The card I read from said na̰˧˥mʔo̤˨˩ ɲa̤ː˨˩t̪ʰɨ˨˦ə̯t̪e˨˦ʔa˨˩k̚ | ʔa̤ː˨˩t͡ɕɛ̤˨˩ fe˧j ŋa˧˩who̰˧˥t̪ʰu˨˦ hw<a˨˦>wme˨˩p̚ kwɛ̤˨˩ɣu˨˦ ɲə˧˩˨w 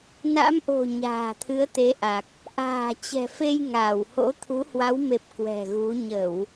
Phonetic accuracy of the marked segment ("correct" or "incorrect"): correct